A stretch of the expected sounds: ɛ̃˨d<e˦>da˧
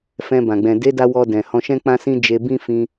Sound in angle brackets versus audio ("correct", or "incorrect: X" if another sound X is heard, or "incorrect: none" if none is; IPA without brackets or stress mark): incorrect: e˨˦